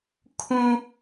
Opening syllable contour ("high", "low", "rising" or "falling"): high